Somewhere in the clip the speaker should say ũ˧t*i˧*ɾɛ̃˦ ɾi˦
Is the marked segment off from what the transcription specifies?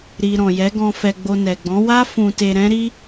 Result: yes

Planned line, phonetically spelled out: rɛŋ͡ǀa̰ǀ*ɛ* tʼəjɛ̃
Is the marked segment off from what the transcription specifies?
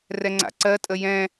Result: yes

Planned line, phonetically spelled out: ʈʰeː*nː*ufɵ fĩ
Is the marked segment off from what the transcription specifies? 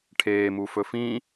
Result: yes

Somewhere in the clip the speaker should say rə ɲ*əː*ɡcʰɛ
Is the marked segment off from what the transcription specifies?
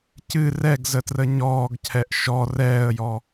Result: yes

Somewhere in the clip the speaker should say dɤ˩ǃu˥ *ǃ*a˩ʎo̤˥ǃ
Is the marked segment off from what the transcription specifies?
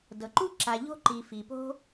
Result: yes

